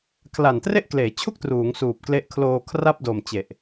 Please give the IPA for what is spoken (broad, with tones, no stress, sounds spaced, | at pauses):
kʰ l a˨˩ n t r e˥˩ ʔ k l eː˩˦ t͡ɕʰ u˥˩ k̚ t r uː˩˦ ŋ s uː˨˩ p̚ k l e˦˥ ʔ kʰ l oː˧ kʰ r a˥˩ p̚ d o˨˩ m t͡ɕ e˨˩ ʔ